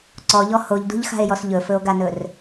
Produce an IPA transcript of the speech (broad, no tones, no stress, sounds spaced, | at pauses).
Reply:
ǀ ɔ ʎ ɔ h o ʎ d ṳ ʎ x a̤ e̯ j ɔ s ʎ ɵ f ɵ o̯ ɡ a n ɵ r